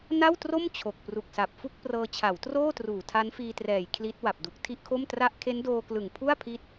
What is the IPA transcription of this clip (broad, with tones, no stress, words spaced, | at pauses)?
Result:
na˥˩wtro˥˩m t͡ɕʰo˨˩k̚pru˨˩k̚sa˨˩p̚fu˥˩k̚ prɤː˧t͡ɕʰa˩˦wtroː˥˩truː˨˩ tʰa˦˥nfiː˧trɛː˨˩j kʰli˦˥t̚ wa˨˩p̚du˨˩k̚tʰi˥˩ʔkʰo˥˩m tra˦˥ʔkʰe˦˥ndoː˧klɯ˨˩ŋ pʰu˥˩a̯ pʰi˦˥t̚